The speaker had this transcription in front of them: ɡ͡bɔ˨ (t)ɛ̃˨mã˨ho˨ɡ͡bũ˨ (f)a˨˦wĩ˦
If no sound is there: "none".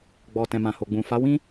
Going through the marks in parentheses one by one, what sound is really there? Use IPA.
t, f

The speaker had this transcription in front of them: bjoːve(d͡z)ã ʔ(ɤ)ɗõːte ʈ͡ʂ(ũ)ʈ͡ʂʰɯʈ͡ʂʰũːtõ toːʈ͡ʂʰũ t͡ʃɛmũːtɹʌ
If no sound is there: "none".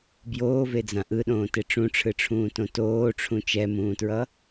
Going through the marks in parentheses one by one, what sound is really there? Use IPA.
d͡z, ɯ, ũ

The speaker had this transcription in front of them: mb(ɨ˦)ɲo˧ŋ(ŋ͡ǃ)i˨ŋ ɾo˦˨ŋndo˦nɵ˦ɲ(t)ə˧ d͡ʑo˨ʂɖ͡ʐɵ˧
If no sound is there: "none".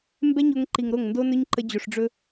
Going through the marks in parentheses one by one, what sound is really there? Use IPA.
ɛ˦, ǃ, ǃ

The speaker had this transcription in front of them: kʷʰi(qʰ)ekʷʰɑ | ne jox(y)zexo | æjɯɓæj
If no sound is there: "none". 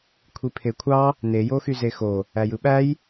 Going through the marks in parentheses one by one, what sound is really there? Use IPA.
pʰ, y

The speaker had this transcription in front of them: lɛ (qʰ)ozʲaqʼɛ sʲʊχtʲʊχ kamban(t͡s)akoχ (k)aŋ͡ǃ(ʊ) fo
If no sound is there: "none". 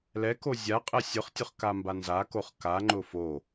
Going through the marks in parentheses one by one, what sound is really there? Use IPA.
k, z, k, ʊ

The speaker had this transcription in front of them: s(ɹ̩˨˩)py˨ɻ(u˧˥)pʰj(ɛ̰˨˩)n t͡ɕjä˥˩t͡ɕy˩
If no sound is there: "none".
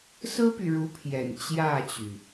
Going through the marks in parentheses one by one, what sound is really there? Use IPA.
ɹ̩˥, u˧˥, ɛ̰˨˩

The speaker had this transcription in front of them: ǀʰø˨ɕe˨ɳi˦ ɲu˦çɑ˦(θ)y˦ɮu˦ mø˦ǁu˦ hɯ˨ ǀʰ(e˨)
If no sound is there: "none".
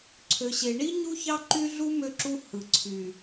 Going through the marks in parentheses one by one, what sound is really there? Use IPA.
ǃ, y˨

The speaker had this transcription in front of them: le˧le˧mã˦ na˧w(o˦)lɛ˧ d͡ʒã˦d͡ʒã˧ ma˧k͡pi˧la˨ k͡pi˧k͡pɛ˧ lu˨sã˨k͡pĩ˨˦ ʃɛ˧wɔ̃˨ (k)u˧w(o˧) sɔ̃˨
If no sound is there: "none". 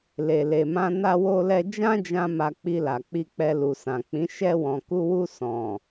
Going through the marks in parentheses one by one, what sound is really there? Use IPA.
o˧, k, u˧

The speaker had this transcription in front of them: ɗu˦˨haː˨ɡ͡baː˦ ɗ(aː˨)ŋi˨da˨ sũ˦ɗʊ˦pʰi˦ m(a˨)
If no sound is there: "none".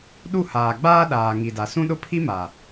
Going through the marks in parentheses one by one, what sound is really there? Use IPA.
aː˨, a˨

